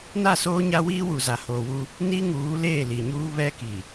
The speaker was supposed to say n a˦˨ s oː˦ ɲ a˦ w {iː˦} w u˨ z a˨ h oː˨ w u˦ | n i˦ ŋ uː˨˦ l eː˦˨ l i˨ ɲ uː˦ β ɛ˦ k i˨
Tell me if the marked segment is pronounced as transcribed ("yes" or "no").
yes